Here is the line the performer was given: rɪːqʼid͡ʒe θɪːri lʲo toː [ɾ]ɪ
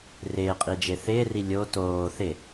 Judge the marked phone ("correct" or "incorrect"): incorrect